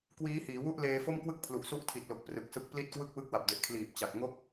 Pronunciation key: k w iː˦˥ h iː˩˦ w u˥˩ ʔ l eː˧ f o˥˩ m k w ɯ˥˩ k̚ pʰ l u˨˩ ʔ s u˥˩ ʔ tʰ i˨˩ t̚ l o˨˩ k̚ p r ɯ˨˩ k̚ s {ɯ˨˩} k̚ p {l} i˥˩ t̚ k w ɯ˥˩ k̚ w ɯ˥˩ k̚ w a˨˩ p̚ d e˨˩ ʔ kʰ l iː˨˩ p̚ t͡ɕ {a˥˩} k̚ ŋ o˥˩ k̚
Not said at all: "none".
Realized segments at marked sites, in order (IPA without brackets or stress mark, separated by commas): ɯ˦˥, l, a˨˩